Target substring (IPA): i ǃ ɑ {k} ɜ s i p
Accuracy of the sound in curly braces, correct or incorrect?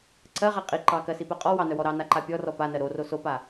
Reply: correct